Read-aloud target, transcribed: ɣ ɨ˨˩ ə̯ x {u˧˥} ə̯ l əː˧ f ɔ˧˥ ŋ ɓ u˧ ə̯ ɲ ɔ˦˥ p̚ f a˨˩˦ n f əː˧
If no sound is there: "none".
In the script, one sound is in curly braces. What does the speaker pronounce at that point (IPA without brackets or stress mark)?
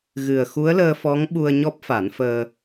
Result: u˧˥